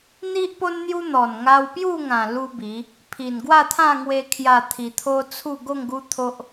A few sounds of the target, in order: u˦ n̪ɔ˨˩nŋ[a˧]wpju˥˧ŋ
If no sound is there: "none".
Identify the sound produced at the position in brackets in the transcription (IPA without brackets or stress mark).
a˧